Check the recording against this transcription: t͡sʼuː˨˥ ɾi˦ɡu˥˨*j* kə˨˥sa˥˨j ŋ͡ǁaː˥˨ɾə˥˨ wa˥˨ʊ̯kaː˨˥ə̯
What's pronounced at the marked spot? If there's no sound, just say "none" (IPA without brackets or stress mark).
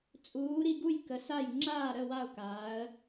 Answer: j